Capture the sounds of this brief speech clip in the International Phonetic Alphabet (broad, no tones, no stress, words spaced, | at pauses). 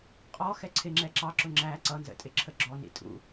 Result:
qʼɔ xɛǀʰɪŋ͡ǁɛ ǁɑǁʊ ŋ͡ǁæ ǀʌnzə̰tʼɪ ǁʰəɡ͡ǁɔnḭ tʼṵ